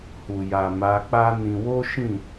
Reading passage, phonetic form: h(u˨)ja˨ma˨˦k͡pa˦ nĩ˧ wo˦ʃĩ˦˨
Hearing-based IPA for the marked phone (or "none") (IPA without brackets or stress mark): u˨